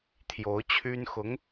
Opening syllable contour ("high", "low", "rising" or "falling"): rising